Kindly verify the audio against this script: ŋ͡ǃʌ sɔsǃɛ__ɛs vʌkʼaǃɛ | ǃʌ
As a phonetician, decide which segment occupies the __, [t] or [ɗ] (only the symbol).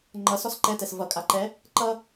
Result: t